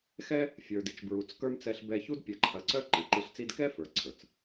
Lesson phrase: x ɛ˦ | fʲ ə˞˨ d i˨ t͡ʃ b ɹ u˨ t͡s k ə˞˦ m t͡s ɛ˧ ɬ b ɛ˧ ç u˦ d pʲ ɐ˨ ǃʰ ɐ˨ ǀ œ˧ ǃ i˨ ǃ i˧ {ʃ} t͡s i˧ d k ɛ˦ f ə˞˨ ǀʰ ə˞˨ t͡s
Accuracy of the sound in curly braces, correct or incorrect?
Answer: incorrect: ɬ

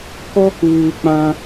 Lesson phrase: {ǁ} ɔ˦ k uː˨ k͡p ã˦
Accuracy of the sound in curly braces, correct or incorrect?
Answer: incorrect: k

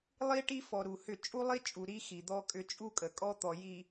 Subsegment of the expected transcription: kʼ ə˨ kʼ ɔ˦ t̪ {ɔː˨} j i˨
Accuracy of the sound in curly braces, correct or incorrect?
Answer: incorrect: ɔ˨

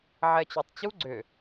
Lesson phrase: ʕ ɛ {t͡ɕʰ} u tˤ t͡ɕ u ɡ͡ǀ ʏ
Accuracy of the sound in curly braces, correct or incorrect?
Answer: incorrect: t͡ɕ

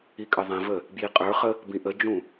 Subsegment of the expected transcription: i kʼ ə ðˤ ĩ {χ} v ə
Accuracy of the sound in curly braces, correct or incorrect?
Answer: incorrect: none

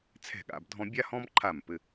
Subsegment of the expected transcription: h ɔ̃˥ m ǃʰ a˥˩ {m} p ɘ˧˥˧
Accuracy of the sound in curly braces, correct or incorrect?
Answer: correct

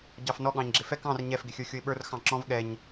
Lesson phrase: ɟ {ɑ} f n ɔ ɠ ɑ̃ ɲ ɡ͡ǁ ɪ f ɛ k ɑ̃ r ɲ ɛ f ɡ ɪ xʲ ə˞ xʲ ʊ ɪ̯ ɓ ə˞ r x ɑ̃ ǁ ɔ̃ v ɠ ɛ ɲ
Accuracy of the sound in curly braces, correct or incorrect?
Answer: correct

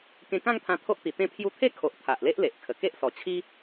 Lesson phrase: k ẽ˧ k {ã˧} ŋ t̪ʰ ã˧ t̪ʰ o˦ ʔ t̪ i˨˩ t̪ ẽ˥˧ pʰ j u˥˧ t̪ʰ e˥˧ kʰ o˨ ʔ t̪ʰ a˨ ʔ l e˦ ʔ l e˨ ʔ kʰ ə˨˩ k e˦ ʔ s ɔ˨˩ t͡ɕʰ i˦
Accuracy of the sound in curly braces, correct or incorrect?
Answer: incorrect: ã˥˧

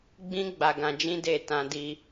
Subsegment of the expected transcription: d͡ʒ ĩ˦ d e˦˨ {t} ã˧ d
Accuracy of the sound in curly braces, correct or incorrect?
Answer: correct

